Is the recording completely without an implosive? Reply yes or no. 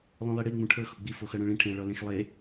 yes